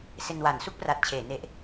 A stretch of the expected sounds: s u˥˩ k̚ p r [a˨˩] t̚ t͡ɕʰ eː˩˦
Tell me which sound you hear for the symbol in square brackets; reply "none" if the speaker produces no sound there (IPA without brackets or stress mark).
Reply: a˨˩